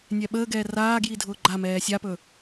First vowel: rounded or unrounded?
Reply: unrounded